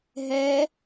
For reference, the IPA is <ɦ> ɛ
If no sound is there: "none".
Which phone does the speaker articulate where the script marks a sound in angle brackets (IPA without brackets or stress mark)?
ɦ